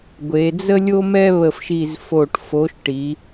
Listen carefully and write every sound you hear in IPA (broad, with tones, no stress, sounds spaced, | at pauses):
ɡʷ e˩˧ d͡z ə˥ lʲ o˥ m ɛ˥ β ə˧˩ f ʃ i˧˩ z f o˧˩ ʈ f o˨˥ ʃ ʈ i˩˧